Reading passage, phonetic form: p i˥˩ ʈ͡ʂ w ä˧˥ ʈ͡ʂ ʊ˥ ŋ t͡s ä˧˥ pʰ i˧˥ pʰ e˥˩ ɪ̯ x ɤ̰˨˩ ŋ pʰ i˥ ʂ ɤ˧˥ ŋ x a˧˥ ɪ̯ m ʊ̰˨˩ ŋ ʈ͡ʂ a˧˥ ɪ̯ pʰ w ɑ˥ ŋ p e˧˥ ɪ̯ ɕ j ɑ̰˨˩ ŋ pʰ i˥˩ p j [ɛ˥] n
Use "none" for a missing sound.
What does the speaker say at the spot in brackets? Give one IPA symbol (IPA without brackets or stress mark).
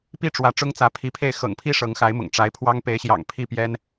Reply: ɛ˥